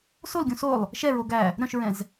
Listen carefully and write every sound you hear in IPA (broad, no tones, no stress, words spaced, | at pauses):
solɡʲũ solˠ | ʃɛɹo ɡæ | ɾœ̃ʃɹɛ̃z